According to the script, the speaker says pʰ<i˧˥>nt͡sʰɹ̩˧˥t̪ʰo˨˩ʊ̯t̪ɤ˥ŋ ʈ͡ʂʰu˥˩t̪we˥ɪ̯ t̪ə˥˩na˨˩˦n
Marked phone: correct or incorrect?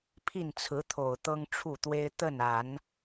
incorrect: i˥˩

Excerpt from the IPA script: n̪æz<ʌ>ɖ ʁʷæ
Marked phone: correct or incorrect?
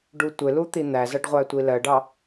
correct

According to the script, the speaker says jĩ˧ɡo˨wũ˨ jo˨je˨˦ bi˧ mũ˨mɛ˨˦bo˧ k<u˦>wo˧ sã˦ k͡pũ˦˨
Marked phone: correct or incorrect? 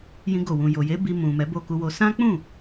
incorrect: u˧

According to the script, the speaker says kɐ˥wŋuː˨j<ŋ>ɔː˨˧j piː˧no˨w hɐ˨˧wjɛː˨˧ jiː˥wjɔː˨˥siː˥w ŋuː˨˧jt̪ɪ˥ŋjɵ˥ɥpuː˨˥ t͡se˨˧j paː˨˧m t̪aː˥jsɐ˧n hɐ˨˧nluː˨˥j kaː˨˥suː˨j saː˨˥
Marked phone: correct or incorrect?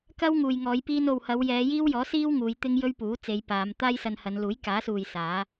correct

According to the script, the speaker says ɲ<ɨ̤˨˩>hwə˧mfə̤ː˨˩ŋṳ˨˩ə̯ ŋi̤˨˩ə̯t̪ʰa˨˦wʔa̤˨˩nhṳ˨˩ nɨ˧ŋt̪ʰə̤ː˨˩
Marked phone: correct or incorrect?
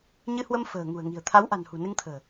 incorrect: ɨ˧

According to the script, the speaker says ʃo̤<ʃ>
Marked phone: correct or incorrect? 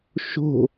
incorrect: none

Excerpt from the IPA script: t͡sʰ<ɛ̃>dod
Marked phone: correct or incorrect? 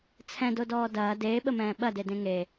correct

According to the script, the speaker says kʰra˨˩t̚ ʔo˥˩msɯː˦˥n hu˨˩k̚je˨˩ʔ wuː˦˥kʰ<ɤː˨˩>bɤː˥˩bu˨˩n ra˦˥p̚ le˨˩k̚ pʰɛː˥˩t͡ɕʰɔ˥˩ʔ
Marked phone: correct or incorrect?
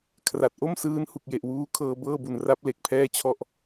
incorrect: ɤː˧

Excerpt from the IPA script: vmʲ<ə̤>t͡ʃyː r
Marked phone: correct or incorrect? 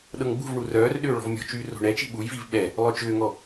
incorrect: ɔ̤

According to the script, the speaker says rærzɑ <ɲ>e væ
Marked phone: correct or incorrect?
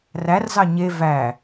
correct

